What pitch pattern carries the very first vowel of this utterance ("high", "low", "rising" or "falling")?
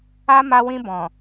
high